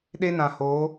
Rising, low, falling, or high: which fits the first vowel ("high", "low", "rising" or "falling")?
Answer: high